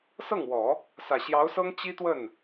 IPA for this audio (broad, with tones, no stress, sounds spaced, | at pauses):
s ɤ˥˩ ŋ w ɔ˨˩˦ | s ä˨˩ ɕ j ɑ˧˥ ʊ̯ s ɤ˥ ŋ t͡ɕ i˥ t̪ w ə˥˩ n